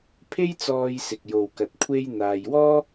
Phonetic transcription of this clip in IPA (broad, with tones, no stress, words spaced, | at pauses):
pʰe˥jt͡sɔː˧jsɪ˨k̚jo˨w kɐ˨t̚ kʷʰe˥j n̪aː˨jwɔː˥